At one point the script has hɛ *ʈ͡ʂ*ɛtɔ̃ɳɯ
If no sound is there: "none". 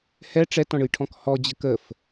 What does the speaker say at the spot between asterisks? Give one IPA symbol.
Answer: ʈ͡ʂ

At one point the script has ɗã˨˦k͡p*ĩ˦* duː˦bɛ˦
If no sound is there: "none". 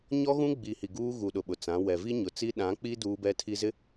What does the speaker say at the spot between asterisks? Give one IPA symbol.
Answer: i˦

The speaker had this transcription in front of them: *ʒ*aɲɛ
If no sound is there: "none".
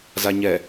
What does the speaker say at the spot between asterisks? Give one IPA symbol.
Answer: z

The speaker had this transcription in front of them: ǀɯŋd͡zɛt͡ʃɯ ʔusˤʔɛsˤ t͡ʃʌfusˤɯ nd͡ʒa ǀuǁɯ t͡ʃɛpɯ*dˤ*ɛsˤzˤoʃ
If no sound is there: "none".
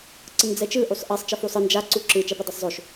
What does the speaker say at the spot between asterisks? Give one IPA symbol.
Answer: dˤ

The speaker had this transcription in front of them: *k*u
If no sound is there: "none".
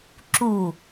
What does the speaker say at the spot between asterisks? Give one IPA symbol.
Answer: ǁ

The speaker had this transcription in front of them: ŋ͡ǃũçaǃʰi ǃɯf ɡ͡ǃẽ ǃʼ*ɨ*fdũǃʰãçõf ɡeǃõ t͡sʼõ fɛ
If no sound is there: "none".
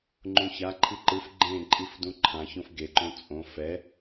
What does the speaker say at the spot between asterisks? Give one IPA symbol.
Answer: i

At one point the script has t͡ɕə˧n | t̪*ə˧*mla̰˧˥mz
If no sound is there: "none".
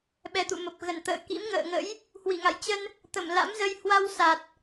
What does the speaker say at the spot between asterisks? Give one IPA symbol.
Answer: ə˧˩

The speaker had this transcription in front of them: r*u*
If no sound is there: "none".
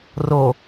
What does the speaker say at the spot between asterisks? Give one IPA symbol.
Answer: o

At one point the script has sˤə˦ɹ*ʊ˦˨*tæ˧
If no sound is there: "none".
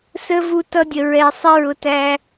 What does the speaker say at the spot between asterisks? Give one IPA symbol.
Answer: ʊ˧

